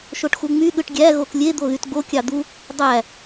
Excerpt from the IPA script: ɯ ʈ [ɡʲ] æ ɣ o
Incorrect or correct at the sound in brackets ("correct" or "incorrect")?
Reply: correct